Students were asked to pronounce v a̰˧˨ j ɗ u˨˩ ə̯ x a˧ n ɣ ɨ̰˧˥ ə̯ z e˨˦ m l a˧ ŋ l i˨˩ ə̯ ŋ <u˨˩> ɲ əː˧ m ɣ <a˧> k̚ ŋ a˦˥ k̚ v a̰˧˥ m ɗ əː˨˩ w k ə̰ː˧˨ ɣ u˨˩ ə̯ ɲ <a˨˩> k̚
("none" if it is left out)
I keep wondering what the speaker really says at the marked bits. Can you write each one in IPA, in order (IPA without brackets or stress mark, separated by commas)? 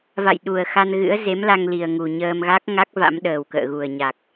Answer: u˨˩, a˦˥, a˨˩